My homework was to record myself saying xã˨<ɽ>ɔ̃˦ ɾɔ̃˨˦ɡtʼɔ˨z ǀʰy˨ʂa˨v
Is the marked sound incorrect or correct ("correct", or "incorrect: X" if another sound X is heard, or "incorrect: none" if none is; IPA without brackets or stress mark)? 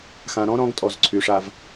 incorrect: ɾ